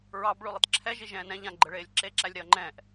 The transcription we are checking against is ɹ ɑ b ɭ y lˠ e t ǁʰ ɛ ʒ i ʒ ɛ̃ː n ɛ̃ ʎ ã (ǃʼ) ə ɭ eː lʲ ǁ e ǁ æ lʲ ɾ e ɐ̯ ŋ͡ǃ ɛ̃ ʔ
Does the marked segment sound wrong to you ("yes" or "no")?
yes